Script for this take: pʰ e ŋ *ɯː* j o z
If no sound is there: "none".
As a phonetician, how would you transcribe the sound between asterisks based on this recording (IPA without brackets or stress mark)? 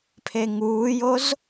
uː